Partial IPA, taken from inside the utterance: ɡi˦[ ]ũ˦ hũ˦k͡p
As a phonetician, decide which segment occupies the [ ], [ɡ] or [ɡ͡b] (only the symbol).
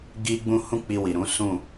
ɡ͡b